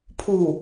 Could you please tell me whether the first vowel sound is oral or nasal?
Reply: oral